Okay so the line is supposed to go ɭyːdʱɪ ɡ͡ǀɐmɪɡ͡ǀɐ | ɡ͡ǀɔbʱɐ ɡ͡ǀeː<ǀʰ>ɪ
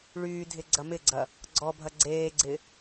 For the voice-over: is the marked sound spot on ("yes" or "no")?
no